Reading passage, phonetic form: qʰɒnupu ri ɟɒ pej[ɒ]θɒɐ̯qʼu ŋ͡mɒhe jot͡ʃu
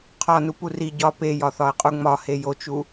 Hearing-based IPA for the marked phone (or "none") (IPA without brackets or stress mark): ɒ